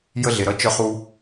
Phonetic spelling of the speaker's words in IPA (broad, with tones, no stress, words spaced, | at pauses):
jə˧ɮe˩ɾʌ˧ t͡ʃœ˧χu˧